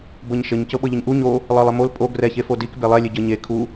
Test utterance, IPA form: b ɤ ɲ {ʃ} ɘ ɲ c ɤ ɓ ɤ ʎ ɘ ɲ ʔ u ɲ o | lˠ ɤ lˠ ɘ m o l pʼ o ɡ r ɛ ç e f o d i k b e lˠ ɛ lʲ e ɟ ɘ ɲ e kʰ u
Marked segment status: correct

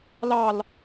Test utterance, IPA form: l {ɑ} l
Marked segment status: correct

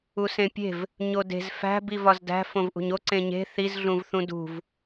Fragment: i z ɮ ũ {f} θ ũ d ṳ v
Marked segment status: incorrect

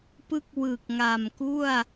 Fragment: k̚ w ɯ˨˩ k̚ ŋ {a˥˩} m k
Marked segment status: incorrect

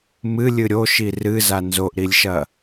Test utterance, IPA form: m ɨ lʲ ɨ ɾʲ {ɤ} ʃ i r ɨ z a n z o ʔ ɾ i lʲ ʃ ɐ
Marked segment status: incorrect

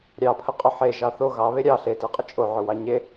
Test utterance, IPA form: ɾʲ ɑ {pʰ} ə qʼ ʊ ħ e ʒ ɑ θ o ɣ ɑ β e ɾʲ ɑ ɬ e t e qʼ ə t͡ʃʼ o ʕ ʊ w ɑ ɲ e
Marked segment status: correct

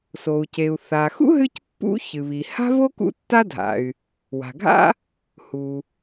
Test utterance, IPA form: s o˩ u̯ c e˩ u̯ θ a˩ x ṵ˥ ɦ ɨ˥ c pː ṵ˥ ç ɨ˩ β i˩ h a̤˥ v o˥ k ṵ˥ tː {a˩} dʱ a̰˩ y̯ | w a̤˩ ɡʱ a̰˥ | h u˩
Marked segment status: incorrect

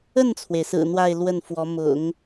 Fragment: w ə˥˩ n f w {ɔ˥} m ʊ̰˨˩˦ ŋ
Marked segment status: incorrect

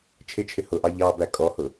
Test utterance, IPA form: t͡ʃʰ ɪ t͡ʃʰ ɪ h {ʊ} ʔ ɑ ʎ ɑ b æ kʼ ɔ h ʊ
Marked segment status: correct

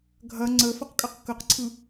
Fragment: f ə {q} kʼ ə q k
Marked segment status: correct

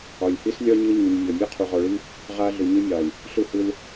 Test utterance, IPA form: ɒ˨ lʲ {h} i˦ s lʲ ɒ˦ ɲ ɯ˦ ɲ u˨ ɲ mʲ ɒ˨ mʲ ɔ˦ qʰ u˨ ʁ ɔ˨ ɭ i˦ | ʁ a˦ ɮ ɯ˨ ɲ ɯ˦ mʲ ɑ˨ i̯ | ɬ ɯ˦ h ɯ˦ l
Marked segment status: correct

